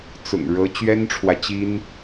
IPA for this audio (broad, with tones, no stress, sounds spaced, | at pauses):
t͡s ʊ̰˨˩ ŋ ɻ ɤ˧˥ t͡ɕ ɥ ɛ˥ n ʈ͡ʂʰ w ä˨ t͡ɕ i˥ n